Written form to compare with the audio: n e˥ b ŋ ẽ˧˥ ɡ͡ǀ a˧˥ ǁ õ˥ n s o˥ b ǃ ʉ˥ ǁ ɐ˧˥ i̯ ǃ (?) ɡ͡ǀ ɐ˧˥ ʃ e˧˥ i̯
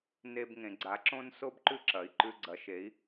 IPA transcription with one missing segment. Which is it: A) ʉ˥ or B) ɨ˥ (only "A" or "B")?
A